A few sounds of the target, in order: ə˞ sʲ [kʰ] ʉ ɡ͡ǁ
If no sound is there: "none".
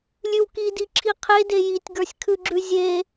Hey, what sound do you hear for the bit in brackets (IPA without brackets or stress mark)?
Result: kʰ